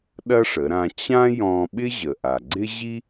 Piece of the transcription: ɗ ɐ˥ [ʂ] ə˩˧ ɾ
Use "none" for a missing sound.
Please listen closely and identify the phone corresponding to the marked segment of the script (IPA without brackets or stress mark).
ʂ